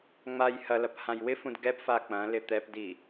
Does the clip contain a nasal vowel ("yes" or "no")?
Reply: yes